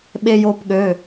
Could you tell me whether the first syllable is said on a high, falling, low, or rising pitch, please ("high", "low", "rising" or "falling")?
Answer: high